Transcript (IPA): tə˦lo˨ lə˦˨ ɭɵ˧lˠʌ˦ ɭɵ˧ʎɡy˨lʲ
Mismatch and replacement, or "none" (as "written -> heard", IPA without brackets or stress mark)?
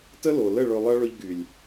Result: none